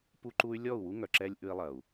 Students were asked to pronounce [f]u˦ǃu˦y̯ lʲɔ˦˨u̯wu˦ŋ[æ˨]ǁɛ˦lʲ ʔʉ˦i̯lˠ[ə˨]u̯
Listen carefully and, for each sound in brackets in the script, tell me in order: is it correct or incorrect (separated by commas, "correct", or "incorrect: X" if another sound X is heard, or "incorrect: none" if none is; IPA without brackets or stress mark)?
incorrect: p, incorrect: œ˨, incorrect: ɐ˨